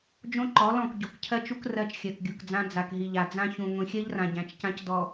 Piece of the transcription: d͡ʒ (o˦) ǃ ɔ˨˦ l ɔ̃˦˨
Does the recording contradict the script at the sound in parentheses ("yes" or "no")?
yes